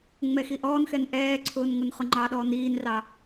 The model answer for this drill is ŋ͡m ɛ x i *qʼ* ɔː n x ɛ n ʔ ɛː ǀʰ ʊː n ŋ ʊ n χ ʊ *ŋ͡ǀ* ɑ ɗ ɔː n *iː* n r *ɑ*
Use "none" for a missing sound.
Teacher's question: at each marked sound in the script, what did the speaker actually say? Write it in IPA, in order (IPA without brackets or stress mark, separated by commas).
ʔ, ŋ͡ǃ, iː, ɑ